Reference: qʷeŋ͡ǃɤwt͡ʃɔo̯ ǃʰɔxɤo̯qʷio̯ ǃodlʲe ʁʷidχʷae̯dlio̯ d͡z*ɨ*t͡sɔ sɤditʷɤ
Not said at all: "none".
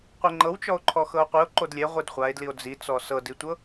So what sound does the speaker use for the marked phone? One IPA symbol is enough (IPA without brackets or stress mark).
i